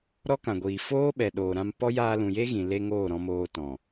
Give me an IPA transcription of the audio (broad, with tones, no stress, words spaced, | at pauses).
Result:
ɾɔ˦kã˨ɡʷiː˨ foː˦ɓɛ˨ɗoː˨ ɾã˧mpɔ˦ jaː˧lũ˨je˦ ɣĩ˨ le˧ ŋoː˦˨ɾɔ̃˧moː˧tɔ̃˨